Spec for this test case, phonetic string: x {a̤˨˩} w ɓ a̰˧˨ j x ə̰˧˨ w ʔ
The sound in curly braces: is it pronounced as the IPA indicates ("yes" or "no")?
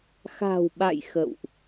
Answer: yes